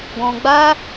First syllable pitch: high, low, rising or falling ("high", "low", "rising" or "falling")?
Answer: low